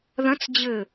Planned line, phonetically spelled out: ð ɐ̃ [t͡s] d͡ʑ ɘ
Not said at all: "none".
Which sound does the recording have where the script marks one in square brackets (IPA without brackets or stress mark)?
t͡s